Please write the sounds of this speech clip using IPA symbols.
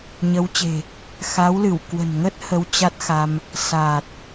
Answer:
ɲə˨˦wt͡ɕe̤˨˩ | xa˨˦wlɨ˧˩wkwə̤˨˩nŋə˦˥t̚ hə˧wt͡ɕa˦˥t̚xa˧m | saː˨˩t̚

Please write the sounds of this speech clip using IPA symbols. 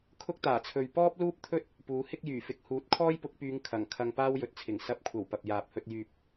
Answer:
kʰʊ˥k̚t̪aː˨˩t͡sʰɵ˨ɥ pɔː˥p̚luː˥p̚ t̪ʰɵ˥t̚ | puː˨˥hɪ˥k̚jyː˨˩fɪ˨˥k̚ huː˨˥t̚kʰɔː˥jpʊ˨˥k̚pyː˨˧ŋ kʰɐ˨˩ŋ kʰɐ˧ŋpaː˥wjɵ˨˥t̚t͡sʰɪ˨˩ŋ sɐ˨˥p̚kʷʰɐ˨˩w pɐ˨p̚jaː˨p̚hɵ˧t̚ jyː˨p̚

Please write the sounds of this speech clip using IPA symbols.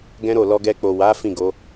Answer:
ɡɛ̃˦ɾo˦˨ lɔ˧ɡɛ˧k͡po˨ wa˨˦ fĩ˦˨ɡo˨˦

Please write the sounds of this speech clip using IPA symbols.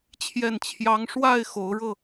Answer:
t͡ɕʰjɛ˥˩nt͡ɕʰjɑ˥ŋ ʂwa˥˩ɪ̯ xo˧˥ʊ̯ɻɤ˥˩

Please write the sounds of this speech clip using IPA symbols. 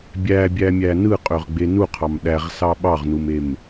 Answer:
bʲæbʲæmʲæ nɯqʼøʁɡ͡be nuqʰɑm ɗæʁsɑ ɓɑʁnumem

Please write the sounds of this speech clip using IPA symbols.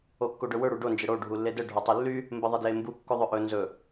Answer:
okːoɖɵwɵ ɽuɖo nd͡ʒəɽo ɖʱulːedə ɖʱotˤylːy | mbəðˤedlembu kːoðˤɵʔɵ nzɵ

